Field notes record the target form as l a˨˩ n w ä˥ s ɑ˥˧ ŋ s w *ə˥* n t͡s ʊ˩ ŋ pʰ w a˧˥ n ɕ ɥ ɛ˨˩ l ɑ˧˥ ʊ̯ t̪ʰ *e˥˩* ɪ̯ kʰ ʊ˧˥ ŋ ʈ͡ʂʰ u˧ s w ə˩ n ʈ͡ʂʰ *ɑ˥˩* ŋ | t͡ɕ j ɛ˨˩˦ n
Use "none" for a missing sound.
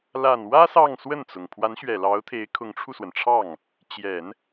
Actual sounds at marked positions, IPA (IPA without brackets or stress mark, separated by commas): ə˥˩, e˧˥, ɑ˥˩